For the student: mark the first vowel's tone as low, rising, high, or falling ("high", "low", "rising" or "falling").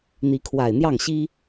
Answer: rising